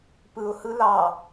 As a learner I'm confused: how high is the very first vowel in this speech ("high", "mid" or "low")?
high